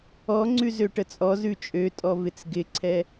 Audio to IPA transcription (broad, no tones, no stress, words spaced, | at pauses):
ɔŋ͡ǀʉ zøʈət͡sʼɔzʉ t͡ʃʼøtʼɔ vɪt͡sɡɪǀʰɛ